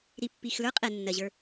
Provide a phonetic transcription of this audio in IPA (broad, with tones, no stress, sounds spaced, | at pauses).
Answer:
ɾ i˨ pː i˨ x l ə˞˦ qʼ ɛ˨ nː ɜ˨ ʑ ə˞˦